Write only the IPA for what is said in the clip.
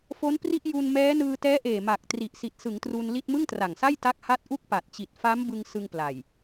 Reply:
fo˦˥npri˥˩ʔ ju˧n mɛː˦˥ nɯː˧tɛː˦˥ʔeː˨˩ ma˨˩k̚ tri˨˩ʔsi˨˩t̚sɯ˩˦ŋ tru˧nli˥˩t̚ mɯ˥˩ŋtra˨˩ŋsa˥˩j ta˥˩k̚ ha˦˥t̚ʔu˥˩k̚ pa˨˩t̚t͡ɕi˨˩t̚fa˦˥mbɯ˧ŋ sɯ˧ŋpla˨˩j

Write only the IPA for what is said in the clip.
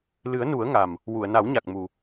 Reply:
lɨ˨˩˦ə̯nu˨˩˦ə̯ŋa˨˩m | wu˨˩˨ə̯na˨˩˦wɲa˨˩k̚mu˨˩

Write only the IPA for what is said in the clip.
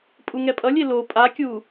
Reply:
pʼuŋɛpʼʌlʲe lo pʼakʲu

